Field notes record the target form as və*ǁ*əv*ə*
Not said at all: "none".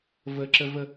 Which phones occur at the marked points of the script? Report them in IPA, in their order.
ǁ, ə

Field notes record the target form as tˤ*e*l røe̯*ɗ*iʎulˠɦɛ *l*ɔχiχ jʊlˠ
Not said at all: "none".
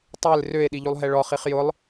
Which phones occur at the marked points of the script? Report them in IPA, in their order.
e, ɗ, ɭ

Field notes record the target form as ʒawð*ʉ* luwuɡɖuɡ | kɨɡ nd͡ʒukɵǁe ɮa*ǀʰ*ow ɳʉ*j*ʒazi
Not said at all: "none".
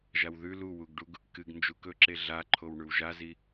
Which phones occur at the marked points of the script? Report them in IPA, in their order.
ʉ, ǃʰ, w

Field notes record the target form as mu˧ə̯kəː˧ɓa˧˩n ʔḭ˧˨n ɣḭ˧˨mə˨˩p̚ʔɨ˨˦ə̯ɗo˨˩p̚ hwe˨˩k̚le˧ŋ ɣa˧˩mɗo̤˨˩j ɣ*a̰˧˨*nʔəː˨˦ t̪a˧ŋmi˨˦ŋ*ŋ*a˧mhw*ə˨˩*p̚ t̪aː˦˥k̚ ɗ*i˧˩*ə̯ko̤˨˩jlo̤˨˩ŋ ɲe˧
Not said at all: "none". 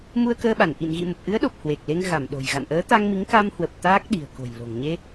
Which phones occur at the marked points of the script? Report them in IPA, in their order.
a̰˧˨, k, ə˨˩, i̤˨˩

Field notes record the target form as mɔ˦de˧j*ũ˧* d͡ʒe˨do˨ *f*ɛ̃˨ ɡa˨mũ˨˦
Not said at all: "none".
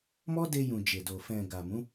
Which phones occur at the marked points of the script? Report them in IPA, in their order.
ũ˨, f

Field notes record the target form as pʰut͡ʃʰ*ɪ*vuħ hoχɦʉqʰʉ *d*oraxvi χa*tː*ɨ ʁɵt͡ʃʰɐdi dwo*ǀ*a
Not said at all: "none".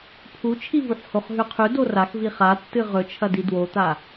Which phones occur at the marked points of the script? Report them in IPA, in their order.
i, d, tː, t̪

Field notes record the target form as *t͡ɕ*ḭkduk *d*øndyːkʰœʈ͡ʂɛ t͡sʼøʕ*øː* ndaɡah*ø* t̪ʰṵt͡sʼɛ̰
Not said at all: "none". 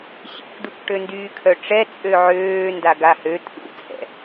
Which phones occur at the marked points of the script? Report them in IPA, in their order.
ɕ, ʈ, øː, ø

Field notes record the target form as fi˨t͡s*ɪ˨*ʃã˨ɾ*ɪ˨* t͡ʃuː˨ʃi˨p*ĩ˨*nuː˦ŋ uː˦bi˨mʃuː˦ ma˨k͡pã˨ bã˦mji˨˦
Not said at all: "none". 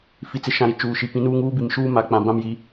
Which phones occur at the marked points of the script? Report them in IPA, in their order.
ɪ˨, i˨, ĩ˨˦

